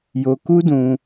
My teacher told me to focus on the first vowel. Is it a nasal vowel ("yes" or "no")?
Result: no